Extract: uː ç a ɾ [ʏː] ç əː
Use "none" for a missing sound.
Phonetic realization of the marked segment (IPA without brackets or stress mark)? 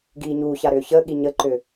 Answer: ʏː